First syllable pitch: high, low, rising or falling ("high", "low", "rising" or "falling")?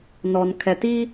low